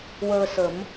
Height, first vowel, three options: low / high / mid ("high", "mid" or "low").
mid